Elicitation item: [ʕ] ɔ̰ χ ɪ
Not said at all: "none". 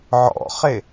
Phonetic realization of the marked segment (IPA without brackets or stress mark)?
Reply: ʕ